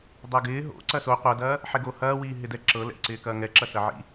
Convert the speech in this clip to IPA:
dˤ ɛ ɡ ɪː ɦ o̰ ǀ ɐ s o qʷ ɐ d ɐː | ħ ɛ ɡ o h ɐː w iː ɦ ɪ d ɛ ǁ ɤ l ɛ̰ ǀ ɪː k ɐː ŋ ɛ ǁ ɐ s ɐ ʕ ḭ

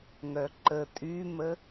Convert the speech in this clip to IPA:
ŋ œ ǃ ə tʼ y m ə

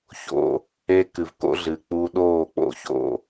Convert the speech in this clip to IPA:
ç o̰˧ | e˧ k ɨ˨ v k o̰˦ ɮ ɨː˨ k͡p u˧ ɗ oː˦˨ k͡p o̰˦ ç o̰˧

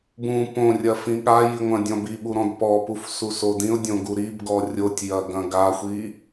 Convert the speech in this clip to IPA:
b ũ p õ rʲ ɐ f ĩ ɠ a j i ŋʷ ɐ̃ dʲ ɔ̃ b i ɓ u ɾ ɔ̃ d p ɔ p u f s u s o d ĩ ʊ̯ dʲ õ ɡ u ɾ i b ɡ ɔ rʲ o tʲ j ɐ ɡ ɐ̃ ɡ a xʷ i

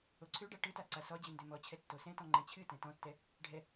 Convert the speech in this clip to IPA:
o ǀʰ ø ɖ a ʈ ɯ t a ǀ a s ɔ d͡ʑ ɨ n d ø m ɔ t͡ɕʰ ɛ tː o s ɛ̃ t ɔ̃ ŋ͡ǃ ɛ̃ t͡ɕʰ ɨ t ɛ̃ t ɔ̃ tː ɛ | ɖʱ ɛ

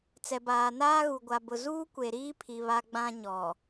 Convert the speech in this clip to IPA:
t͡s ɛ˨ b aː˨ n aː˦ ɣ u˨ ɡʷ a˨ b ʊ˨ z uː˦ kʷ e˨ ɾ iː˦ pʰ i˨ β a˦ ɡ͡b ã˦ ɲ ɔ˨

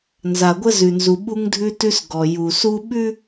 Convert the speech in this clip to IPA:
n z a˨ ɡʷ ə˦ z ʉ˨ n z u˨ ɓ u˦ ŋ dʱ ʉ˦ t ʉ˦ s ɡ ɔ˨ j u˨ s u˦ ɓ ʉ˦

